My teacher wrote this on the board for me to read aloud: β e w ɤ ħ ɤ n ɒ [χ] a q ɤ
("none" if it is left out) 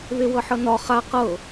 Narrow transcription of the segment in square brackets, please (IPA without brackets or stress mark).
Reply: χ